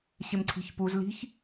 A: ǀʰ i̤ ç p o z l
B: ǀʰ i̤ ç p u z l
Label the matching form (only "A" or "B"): B